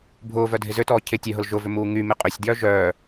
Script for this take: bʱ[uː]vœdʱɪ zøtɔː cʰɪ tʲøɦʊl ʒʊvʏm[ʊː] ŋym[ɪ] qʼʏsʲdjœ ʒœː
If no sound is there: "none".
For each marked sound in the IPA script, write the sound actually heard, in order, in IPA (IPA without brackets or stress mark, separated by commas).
ʊː, uː, ɪ